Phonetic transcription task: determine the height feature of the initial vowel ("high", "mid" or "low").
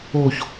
mid